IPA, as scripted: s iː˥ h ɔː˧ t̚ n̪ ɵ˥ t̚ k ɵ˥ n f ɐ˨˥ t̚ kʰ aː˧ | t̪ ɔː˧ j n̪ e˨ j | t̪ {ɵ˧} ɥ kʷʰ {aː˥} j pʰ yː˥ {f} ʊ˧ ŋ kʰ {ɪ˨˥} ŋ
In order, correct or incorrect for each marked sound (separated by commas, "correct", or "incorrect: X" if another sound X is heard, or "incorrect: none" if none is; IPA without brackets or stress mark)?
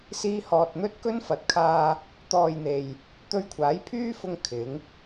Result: correct, incorrect: aː˨˥, correct, correct